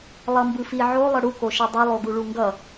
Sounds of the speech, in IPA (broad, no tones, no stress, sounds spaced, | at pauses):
lˠ ʌ m b ɯ f i ʕ o lˠ ʌ ɽ u k o ʃ ɛ dˤ ʌ lˠ o ɡ u ɭ u ŋ ɡ ʌ